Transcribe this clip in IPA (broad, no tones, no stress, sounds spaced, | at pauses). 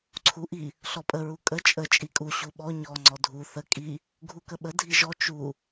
ǀʰ u ʔ i | ɬ ɔ pʼ ə ɹ u kʼ ə t͡ʃʼ ə t͡ʃʼ i kʼ u ɕ u ɓ ɔ ɲ ɔ ŋ͡ǀ ɔ dʱ u θ ə kʼ i | ɡʱ u k ə ɓ ə dʱ i ʒ ɔ t͡ʃ u